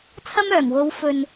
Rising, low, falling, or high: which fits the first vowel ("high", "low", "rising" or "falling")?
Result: high